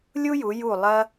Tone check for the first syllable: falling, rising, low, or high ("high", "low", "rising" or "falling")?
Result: high